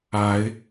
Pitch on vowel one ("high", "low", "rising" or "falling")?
rising